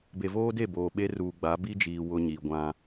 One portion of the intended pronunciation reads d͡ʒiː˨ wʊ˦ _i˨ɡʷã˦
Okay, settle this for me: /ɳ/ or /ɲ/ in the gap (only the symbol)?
ɲ